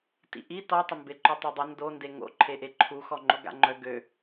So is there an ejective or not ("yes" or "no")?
no